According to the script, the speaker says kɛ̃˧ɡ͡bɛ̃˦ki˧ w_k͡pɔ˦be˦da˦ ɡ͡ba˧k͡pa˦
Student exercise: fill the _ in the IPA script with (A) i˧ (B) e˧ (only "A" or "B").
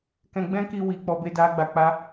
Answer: A